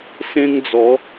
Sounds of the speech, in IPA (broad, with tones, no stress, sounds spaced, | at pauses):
s ẽ˦ ŋ d͡z ɔ˨˦